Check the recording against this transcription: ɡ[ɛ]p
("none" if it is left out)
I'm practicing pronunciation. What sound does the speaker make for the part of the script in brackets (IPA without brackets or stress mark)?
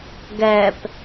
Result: ɛ